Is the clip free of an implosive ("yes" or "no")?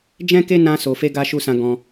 yes